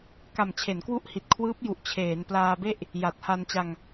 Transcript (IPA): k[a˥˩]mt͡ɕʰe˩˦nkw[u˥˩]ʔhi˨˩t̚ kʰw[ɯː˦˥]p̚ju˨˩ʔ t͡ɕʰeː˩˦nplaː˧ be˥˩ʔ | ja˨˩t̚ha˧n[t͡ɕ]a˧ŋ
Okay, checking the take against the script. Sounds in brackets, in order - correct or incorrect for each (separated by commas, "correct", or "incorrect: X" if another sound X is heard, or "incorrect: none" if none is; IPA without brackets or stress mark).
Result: incorrect: a˨˩, incorrect: u˦˥, correct, correct